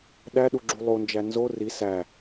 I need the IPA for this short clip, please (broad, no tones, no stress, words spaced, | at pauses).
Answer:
ɗæɗuɡ͡ǁu lˠond͡ʒæ nzo ri sæ